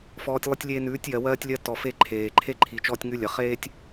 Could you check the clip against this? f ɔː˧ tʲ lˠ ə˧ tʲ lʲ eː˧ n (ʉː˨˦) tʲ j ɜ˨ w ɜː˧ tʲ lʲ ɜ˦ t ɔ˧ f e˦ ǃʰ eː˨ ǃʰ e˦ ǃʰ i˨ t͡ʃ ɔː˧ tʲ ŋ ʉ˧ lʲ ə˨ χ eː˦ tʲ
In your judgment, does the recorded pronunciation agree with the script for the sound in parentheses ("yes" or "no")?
yes